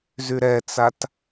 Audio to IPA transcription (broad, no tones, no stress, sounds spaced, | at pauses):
z y ɾ ɛ t͡s a t